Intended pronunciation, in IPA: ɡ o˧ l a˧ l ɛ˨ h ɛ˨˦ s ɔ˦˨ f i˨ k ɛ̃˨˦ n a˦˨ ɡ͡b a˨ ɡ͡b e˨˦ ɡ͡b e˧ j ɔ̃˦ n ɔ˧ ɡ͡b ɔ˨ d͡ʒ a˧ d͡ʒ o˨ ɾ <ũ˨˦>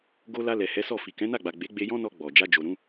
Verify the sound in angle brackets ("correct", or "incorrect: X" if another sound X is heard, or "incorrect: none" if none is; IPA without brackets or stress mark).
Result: correct